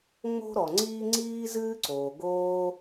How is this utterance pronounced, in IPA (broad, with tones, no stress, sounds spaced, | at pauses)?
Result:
ŋ͡m o̤˥ ɾ ɔ˩ ŋ͡ǀ iː˥ ŋ͡ǀ iː˥ z ɨː˥ ǀ oː˩ ɡ oː˥